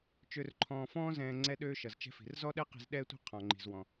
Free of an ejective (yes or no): yes